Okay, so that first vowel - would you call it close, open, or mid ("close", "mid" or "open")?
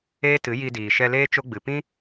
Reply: mid